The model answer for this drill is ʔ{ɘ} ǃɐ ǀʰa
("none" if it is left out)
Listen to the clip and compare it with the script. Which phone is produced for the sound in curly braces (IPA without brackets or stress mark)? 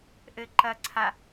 ɘ